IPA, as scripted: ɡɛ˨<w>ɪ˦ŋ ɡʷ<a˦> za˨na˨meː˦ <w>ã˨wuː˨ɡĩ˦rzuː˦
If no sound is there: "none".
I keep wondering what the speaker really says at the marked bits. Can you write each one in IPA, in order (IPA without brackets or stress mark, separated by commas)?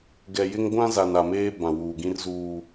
j, ã˦, b